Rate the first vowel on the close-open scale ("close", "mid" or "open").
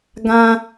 open